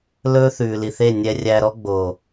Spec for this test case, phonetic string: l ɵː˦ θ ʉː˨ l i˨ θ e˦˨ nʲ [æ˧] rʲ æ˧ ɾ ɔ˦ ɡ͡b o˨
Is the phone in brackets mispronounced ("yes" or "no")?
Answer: yes